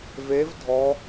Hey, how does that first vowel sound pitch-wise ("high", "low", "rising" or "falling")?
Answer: rising